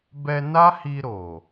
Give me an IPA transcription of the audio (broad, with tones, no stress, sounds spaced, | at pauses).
b ɛ˧ n a˦ h i˧ ɾ o˨